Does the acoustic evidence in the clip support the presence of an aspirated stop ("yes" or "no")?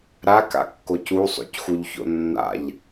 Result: no